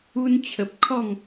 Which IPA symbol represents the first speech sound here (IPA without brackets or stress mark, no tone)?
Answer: u